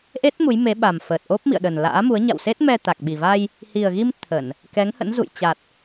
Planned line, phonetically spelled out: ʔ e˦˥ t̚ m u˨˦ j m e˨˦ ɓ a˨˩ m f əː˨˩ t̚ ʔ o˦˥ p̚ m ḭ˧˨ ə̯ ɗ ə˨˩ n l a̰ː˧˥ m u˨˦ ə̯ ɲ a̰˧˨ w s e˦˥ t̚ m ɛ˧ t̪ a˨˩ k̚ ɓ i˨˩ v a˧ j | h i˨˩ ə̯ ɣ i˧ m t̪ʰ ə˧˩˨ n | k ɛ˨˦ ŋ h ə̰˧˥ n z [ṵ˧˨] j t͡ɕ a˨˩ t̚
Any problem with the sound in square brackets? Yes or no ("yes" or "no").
no